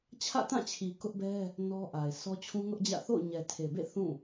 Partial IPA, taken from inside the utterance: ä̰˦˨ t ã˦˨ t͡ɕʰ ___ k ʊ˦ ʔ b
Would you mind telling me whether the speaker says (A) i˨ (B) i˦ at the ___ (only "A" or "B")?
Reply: A